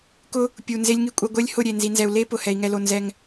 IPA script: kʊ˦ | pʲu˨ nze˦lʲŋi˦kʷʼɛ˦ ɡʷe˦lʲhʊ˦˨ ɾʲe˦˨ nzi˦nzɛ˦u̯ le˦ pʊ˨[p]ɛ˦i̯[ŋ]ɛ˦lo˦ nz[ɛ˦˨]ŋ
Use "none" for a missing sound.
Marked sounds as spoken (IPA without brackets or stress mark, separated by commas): h, ŋ, ɛ˦